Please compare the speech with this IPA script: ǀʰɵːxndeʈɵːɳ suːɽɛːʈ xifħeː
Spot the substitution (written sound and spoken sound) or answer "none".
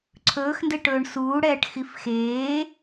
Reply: ħ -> x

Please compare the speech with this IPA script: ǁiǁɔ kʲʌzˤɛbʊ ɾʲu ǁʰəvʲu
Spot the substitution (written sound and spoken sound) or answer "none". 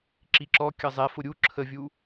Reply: b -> f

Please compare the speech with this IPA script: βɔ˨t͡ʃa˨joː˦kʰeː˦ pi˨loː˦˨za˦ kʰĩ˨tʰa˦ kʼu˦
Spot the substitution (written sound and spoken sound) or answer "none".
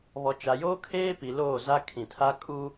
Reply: none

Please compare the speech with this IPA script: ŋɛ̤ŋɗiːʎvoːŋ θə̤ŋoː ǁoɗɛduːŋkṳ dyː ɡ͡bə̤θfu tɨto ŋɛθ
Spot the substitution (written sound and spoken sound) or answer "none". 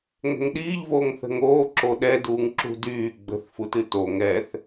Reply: k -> ǁ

